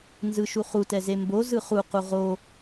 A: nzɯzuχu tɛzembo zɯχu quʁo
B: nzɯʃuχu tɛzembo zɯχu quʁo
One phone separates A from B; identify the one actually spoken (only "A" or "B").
B